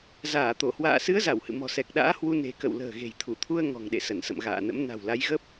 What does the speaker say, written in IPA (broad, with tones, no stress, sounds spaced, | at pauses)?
z aː˧˩ t̪ o˧˩ h w a̰ː˧˨ s ɨ˨˦ ə̯ z a˧˩ w h ɨ̰˧˨ m ɔ̤˨˩ s ɛ˨˩ k̚ ɗ a̰ː˧˥ h w u˧ n e̤˨˩ k ə̰˧˨ w l ə̤ː˨˩ ɣ e̤˨˩ j t̪ʰ u˧˩ t̪ʰ u˧ ə̯ ŋ ɔ̤˨˩ ŋ ɗ ḛ˧˨ s ə˧˩ n s ə̰˧˨ m ɣ a̰ː˧˨ n ə̰˧˥ m n a̤˨˩ w l a˨˦ j ɣ ə˦˥ p̚